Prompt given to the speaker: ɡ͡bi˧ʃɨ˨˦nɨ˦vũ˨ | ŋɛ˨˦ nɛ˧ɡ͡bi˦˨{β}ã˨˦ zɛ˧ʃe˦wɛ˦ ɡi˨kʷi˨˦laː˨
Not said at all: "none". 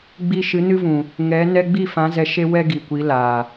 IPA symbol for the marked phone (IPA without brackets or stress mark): f